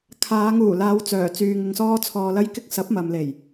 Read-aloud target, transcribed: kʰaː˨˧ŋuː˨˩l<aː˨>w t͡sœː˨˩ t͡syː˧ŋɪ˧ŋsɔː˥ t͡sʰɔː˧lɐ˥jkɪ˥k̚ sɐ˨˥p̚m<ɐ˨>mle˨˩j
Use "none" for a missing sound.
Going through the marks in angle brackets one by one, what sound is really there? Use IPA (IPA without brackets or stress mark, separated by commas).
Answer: aː˨˧, ɐ˨